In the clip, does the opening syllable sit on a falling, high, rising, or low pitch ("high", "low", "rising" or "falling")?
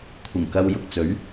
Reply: low